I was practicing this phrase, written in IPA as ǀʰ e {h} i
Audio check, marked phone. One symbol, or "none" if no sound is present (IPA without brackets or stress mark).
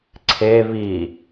β